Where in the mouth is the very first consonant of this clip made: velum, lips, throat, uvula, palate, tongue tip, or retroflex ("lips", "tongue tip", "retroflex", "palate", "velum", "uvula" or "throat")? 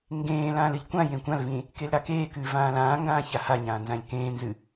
velum